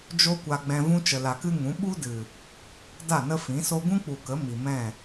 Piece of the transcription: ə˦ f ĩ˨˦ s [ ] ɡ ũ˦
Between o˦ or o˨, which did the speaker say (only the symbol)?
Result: o˦